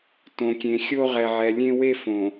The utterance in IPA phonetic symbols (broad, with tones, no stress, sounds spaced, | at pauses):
t õ˨ kʲ ẽ˨ xʲ o˦ ʁ ɛ˨ ʕ ɛ˨ lʲ ẽ˦ w e˦ f õ˨